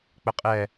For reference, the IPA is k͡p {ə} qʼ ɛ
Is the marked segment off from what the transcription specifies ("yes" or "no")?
no